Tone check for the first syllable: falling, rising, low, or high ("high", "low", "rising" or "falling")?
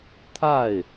falling